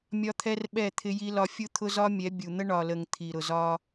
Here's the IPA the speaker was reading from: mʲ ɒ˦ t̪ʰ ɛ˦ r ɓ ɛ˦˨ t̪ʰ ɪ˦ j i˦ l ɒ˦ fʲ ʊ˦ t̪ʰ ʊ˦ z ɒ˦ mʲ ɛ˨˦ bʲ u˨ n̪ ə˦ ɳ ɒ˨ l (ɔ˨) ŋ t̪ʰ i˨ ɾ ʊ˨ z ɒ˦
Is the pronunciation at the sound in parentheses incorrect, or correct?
incorrect: ə˨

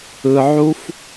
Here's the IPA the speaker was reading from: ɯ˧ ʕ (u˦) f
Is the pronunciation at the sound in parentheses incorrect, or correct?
correct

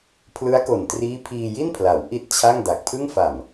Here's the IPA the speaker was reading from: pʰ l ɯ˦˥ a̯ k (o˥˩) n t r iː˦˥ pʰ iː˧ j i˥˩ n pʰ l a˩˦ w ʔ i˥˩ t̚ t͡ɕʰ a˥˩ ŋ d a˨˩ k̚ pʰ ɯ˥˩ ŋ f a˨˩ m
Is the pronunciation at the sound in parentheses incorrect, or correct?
incorrect: o˨˩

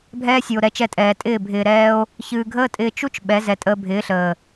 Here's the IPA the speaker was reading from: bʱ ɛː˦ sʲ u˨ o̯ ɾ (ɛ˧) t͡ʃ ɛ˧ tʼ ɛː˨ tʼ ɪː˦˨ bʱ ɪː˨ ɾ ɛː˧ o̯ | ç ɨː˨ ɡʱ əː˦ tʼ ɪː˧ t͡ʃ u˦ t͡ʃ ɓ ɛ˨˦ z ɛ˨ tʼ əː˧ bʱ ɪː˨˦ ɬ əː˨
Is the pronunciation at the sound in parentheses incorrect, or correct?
correct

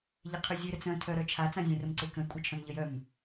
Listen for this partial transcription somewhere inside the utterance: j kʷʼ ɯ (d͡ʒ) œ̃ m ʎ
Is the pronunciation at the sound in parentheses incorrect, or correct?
incorrect: t͡ʃʰ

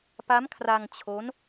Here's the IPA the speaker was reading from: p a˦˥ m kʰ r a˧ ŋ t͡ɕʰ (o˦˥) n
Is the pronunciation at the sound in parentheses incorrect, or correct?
correct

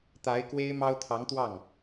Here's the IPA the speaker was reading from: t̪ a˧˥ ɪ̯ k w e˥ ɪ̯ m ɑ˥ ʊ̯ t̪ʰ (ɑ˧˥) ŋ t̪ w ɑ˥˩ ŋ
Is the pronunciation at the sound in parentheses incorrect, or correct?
correct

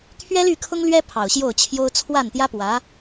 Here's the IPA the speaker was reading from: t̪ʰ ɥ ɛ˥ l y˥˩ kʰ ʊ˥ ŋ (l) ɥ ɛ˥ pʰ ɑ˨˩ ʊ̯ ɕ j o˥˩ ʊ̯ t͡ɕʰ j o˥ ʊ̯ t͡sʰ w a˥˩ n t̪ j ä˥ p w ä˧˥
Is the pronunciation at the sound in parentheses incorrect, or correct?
correct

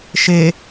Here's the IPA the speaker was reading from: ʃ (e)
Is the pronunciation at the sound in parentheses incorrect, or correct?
correct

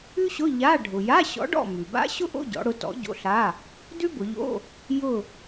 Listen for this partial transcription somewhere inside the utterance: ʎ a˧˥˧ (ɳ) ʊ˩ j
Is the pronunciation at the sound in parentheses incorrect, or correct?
incorrect: ɖʱ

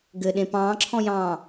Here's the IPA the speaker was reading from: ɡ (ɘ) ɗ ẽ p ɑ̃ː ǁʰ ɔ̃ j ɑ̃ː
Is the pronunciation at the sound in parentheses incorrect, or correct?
correct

